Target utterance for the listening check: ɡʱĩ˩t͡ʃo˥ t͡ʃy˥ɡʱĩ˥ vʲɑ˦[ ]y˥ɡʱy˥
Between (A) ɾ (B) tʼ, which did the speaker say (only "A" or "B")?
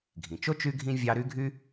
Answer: A